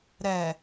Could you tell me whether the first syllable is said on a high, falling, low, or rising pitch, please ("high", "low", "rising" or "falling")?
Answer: low